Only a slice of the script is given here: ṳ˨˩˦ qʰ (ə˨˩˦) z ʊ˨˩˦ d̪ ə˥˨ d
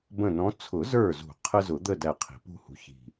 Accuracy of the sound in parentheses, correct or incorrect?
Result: incorrect